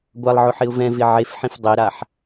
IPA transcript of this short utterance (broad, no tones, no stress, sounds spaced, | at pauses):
ɡʷ a lˠ ʕ ʊ ħ ɪ ʊ̯ v ɛ̃ v ɪ ʕ e f ħ ĩ f dˤ e ɾ a ħ